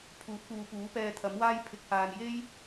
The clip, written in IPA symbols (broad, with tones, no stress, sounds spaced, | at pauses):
pʰ uː˨˥ t̚ p uː˨ p uː˨˥ p ɛː˧ t̪ʰ ɐ˨˥ m w aː˥ j pʰ ɪ˨˥ k̚ h aː˨ n j e˥ j